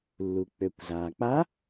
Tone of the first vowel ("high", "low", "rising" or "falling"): low